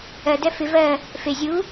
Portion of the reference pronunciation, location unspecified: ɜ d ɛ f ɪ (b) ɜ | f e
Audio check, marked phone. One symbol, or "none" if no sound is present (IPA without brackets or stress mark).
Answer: v